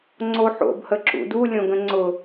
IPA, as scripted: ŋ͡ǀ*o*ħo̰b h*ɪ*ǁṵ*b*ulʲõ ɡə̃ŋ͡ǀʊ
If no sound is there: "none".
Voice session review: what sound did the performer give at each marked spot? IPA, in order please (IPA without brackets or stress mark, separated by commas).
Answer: o, ə, d